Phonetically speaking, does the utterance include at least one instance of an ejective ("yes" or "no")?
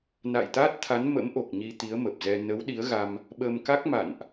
no